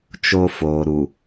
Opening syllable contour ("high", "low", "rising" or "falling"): high